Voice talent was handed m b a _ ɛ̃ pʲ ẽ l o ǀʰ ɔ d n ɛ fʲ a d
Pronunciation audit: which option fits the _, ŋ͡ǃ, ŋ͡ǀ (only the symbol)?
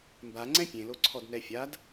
ŋ͡ǀ